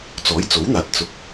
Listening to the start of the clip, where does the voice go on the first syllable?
rising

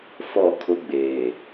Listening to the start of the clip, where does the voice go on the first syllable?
falling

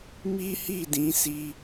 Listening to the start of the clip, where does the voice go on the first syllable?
high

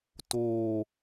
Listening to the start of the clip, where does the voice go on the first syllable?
low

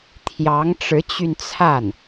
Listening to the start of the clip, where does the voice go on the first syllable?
rising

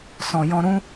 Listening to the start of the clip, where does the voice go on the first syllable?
low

